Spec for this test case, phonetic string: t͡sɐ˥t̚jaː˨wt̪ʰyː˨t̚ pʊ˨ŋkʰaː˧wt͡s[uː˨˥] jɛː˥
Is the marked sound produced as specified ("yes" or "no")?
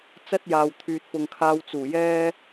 no